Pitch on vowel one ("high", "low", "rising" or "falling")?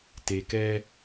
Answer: low